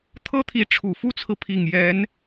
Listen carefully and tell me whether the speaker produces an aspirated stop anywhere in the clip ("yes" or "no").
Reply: yes